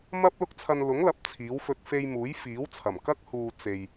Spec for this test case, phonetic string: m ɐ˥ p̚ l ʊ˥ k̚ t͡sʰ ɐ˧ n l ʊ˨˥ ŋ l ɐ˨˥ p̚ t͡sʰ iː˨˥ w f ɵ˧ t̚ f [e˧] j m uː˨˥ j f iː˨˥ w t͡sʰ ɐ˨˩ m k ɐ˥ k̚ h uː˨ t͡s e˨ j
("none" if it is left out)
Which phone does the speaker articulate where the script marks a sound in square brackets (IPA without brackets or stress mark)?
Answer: e˧